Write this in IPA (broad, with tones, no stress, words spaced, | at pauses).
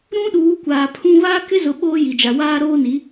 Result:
ɾũ˦ɗuː˨˦ kʷaː˨pʰũ˦ βaː˦kɪ˦zʊ˨ ɓoː˦ji˨d͡ʒa˨waː˦ ɾoː˦ni˨˦